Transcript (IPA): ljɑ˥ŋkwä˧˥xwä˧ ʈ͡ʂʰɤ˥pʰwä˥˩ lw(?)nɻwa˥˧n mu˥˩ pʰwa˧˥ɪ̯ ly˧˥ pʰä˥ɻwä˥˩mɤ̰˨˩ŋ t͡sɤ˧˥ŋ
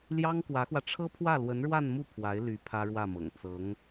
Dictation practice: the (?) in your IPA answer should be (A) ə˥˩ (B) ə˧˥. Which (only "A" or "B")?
B